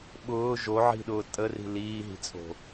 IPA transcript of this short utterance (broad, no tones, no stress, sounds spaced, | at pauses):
ɓ ʊː ʒ o ʕ i̤ ɗ ʊː tʼ ə r i̤ l iː ɦ i̤ t͡sʼ o̤